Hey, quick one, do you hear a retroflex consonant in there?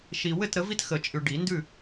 yes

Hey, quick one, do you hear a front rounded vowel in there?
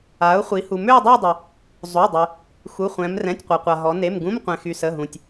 yes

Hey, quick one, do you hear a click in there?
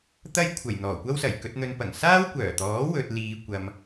no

